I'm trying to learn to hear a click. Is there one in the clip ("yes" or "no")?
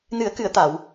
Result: no